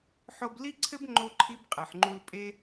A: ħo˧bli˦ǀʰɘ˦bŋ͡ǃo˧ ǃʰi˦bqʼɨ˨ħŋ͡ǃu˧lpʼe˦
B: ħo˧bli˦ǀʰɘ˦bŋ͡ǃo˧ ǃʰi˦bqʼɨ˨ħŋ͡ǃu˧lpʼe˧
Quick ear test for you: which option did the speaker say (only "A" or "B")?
A